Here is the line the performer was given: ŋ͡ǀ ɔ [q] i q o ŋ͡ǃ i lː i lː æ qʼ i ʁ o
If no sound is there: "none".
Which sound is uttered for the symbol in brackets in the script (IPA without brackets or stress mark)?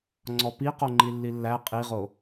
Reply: p